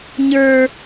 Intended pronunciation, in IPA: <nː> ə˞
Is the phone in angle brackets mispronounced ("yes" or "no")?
yes